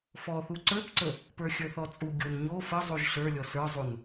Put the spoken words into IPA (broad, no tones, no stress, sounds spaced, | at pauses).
f ɔ θ u ǀ ə˞ p ǀ ə | p ə˞ xʲ ə˞ θ ɔ t͡sʼ u ɡʲ o n ɲ o f ə zˤ u ʒ ɬ ə˞ lʲ ɔ s ə˞ zˤ u n